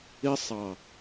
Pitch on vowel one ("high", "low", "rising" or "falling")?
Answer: high